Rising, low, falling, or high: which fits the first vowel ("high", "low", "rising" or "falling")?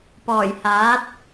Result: low